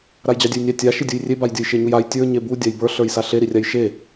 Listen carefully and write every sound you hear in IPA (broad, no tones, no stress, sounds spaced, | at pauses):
ɾ a j d͡ʑ ɑ dʲ ɛ j nʲ ɑ tʲ a ʃ i dʲ u j rʲ e b a j dʲ ə j ʃ e ɲ u j a j tʲ ə˞ ɲ e b u dʲ a j b ə˞ ɬ ə˞ j s a ɬ e ɾ i rʲ a j ʃ e